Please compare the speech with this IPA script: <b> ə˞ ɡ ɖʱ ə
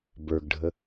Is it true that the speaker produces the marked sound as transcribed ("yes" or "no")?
yes